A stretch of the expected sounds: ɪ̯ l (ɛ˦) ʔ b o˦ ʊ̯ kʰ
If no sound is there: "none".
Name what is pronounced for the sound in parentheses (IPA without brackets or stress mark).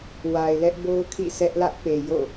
ɛ˦